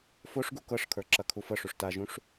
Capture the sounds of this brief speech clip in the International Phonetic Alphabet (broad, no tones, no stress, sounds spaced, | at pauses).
f o ʂ ɡ u k ɤ ʂ kʰ ə˞ ǁ ɐ kʰ u f ɤ ʂ u ʂ t a ʒ ũ ʂ